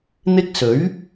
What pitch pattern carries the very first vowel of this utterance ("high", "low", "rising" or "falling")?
high